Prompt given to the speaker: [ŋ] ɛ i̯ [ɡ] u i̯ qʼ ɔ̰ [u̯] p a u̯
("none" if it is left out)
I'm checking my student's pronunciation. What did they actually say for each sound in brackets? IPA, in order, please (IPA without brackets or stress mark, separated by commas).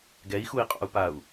ɡ, x, u̯